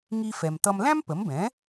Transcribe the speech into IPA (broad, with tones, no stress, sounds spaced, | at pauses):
ŋ i˧ f ɛ˩ m t ʌ˧ m l æ̃˥ m p ə˩˥ m b ɛ̃˩˥